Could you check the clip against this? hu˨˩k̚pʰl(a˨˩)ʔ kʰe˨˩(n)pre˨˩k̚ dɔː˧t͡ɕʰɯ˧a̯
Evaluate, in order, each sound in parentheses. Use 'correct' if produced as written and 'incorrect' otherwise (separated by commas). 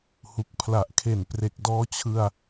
correct, correct